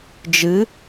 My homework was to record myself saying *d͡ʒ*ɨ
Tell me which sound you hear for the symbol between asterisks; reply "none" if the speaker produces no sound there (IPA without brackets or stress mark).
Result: d͡ʒ